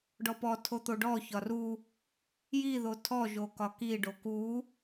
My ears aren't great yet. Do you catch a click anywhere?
no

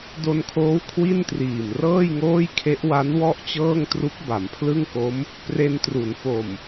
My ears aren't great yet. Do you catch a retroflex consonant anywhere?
no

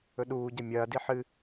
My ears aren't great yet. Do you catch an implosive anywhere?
yes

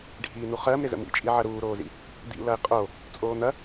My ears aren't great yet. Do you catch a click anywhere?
no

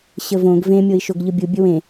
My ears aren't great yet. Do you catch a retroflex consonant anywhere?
no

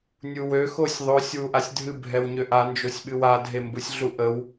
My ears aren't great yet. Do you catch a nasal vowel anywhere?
no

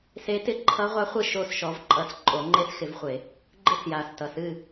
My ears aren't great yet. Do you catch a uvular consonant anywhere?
yes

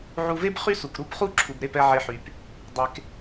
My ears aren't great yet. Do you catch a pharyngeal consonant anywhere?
yes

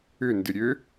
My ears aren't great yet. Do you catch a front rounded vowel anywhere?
yes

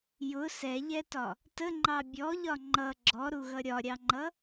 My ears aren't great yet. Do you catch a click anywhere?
yes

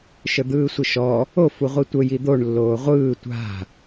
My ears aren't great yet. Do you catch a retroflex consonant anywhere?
yes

